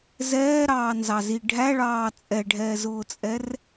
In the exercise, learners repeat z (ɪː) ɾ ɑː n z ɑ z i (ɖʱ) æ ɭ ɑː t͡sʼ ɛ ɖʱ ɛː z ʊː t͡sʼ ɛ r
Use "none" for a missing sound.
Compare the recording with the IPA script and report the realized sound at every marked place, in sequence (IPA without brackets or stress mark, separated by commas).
ɛː, ɖʱ